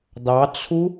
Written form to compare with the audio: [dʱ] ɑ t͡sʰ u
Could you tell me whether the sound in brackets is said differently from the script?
yes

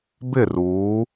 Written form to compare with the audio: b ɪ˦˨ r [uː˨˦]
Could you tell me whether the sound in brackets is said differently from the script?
no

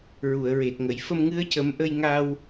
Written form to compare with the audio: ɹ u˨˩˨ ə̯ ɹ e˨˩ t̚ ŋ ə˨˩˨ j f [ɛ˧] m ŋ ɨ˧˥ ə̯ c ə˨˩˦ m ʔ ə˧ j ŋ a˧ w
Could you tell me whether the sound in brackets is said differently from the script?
yes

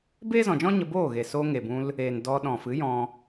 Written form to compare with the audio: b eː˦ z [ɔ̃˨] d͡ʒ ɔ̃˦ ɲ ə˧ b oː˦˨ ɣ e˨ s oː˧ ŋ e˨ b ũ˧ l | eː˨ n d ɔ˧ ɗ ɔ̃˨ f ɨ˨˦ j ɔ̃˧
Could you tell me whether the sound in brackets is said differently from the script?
no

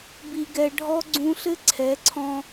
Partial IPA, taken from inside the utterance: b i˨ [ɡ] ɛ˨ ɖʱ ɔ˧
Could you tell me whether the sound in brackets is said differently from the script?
no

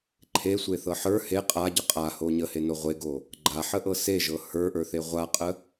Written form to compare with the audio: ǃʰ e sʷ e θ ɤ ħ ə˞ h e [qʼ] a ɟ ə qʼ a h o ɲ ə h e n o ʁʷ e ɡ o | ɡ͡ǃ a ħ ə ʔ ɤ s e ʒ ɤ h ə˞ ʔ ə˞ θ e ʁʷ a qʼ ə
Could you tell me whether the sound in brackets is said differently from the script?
no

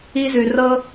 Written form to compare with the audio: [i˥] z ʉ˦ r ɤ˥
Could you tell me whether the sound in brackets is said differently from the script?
no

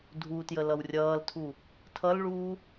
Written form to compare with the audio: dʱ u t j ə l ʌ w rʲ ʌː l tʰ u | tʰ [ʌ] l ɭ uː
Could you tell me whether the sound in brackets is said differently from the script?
no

